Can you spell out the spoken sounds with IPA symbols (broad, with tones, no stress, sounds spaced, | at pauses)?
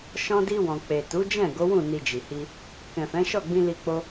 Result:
ʃ ɔ̃˧ d i˧ w ɔ̃˨ k͡p e˨ t u˨˦ d͡ʒ ɛ̃˦˨ ɡ o˨˦ w ũ˦˨ n i˧ d͡ʒ i˨ h i˧ | k ɛ̃˨ f ɛ̃˨˦ ʃ ɔ˦˨ ɡ͡b ĩ˧ l i˧ k͡p o˧